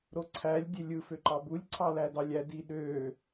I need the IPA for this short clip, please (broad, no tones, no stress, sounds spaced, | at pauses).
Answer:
ɾ o ǀʰ æ lʲ dʲ e lʲ ɯ f ø ǃ ɑ b u lʲ ǀʰ ɑ l æ d ɑ lʲ æ d i ɗ øː